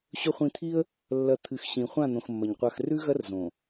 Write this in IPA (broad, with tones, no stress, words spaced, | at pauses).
ɕɵ˨χʷĩ˨t̪ʰi˦ə̯ | lːɐ˨ t̪ʰɨ˨xɕĩ˨ χʷã˦˨n̪õ˨xmːɐ˨ɲ qʷa˨xrʉ˦ɣɐ˦r zõ˨